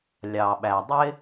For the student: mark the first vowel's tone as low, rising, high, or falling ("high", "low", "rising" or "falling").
low